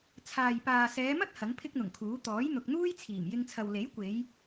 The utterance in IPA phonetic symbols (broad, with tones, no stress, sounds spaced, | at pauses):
t͡sʰ aː˨ j p aː˨ s ɛː˨˧ m ɐ˥ t̚ h ɐ˨˥ ŋ pʰ ɪ˥ k̚ n̪ ʊ˨˩ ŋ kʰ uː˨˥ t̪ ɔː˨˥ j n̪ ʊ˨ k̚ n̪ uː˥ j t͡sʰ iː˨˩ m j ɪ˧ ŋ t͡sʰ ɐ˨ w l e˨˥ j kʷ e˨˧ j